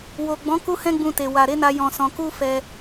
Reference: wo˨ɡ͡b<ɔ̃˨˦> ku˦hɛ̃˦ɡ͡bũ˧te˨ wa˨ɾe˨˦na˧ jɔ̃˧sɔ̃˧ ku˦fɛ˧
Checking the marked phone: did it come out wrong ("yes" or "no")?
no